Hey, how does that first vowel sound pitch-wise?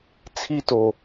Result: high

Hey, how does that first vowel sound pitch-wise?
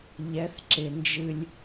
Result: rising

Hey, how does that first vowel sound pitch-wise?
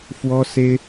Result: high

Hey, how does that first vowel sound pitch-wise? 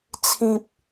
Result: low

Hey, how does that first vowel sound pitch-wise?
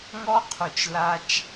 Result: high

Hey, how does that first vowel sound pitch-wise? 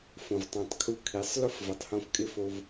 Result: low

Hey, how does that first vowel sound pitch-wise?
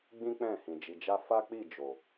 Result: high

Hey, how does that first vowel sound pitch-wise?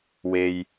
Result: low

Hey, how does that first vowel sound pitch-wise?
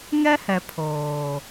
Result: high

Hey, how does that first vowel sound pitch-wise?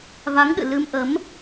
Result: rising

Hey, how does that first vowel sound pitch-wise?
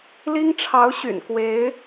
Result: high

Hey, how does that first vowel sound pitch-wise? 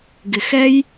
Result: low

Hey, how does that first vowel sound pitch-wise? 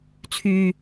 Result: low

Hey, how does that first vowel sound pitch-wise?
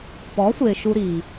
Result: rising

